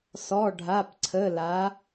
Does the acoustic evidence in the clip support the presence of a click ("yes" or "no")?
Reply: yes